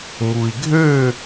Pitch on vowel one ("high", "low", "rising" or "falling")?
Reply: low